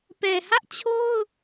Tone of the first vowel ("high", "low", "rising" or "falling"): low